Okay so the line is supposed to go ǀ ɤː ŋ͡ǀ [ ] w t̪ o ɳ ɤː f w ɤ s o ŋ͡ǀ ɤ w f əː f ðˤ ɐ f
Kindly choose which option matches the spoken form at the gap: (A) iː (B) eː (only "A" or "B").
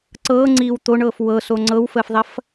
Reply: A